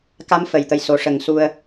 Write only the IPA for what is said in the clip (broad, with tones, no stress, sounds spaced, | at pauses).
k a˧˥ m f ə˨˩˨ j t̪ ə˨˩ j s o˨˩ ʂ ə˨˩˦ ŋ s u˧ ə̯